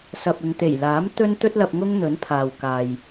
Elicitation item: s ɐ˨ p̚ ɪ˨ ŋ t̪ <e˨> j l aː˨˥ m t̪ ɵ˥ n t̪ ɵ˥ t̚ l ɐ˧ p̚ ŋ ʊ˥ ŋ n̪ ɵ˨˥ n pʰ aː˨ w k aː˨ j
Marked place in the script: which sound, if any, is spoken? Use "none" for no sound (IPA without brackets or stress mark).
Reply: e˨˩